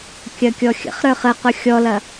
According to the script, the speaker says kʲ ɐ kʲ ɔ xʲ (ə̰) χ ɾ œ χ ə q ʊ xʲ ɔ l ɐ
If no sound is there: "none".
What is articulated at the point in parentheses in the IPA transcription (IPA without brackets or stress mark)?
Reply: ə̰